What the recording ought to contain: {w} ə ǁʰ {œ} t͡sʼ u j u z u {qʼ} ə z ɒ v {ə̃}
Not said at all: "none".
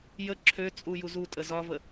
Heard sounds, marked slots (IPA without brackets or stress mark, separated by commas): j, ø, tʼ, ə